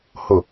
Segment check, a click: absent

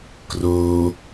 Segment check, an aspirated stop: absent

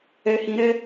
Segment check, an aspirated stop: absent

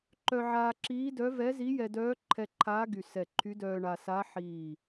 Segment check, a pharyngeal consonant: present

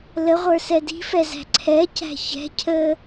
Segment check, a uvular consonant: present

